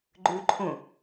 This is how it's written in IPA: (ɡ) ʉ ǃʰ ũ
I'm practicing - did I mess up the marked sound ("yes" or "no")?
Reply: yes